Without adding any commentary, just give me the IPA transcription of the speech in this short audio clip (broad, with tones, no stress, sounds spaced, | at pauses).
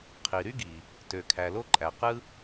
qʰ i˩ ɾ y˥ ɡ i˩ | t ø˩ kʰ æ˩ l o˥ ǃʼ æ˩ q ɯ˥